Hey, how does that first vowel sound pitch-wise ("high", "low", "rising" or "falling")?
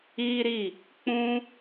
high